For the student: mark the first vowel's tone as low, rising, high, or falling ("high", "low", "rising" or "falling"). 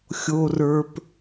low